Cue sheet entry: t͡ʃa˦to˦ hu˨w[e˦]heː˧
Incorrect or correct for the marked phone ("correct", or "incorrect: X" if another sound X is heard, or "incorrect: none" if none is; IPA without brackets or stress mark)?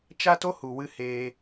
incorrect: ɨ˦